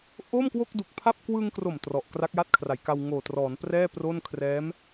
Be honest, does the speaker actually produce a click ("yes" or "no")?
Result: no